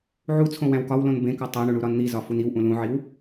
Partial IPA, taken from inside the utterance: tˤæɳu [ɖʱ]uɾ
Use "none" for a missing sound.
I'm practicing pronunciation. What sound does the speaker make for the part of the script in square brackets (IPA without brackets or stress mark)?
ɳ